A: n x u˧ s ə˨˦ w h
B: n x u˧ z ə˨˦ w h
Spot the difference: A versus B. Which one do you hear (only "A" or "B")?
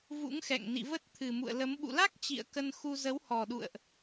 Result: B